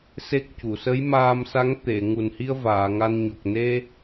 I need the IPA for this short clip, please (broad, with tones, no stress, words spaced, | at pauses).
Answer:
se˦˥k̚cu˨˩˨ sə˧˥jmaː˧msa˧˥ŋ t̪e˨˩˨ ŋu˨˩nhi˧ə̯ vaː˨˩˨ŋa˧n ɲo˨˩k̚ne˧